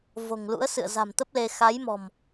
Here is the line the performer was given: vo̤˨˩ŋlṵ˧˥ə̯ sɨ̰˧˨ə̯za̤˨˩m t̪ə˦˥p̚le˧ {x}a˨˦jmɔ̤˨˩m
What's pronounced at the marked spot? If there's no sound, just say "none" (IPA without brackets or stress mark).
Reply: x